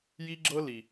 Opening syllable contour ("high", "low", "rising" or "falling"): high